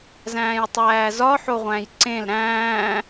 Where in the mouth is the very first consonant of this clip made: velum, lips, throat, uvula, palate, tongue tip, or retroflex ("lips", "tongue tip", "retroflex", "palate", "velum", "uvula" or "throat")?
tongue tip